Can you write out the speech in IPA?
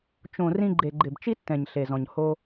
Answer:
t͡ʃ õ˨ r ĩ˧ ɡ͡ǃ e˨ ɡ͡ǃ ɪ˨ b t͡ʃ i˦ tː ɛ̃˨ ɲ ɬ e˨ z ɔ̃˨ ɲ h o˧

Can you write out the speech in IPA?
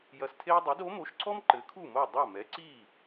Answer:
j ɐ˧ s tʰ e˥ j dˤ e˩˥ d o˩˥ m o˩˥ ʃ ǀʰ ɔ˥ m ǃ ɘ˩˥ kʰ u˥˩ m o˥˩ dˤ ɐ˥˩ m ɛ˩˥ ǀ i˥˩

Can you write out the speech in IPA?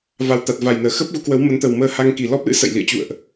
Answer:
v a˨˩ w t̪ a˨˩ t̚ v a˨˩ j n əː˧˩ x ə˦˥ p̚ ɣ u˨˦ k w ə˨˦ w m ə˨˦ n t̪ ə˨˩ w m əː˧ h a˧ ŋ k i˨˩ l ɔ˦˥ p̚ l ɨ̰˧˥ s ə̰˧˨ j l ḭ˧˨ ə̯ t͡ɕ ṵ˧˨ ə̯ ʔ

